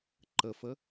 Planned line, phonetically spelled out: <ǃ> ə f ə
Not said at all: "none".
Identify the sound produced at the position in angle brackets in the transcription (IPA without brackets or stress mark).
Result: ǃ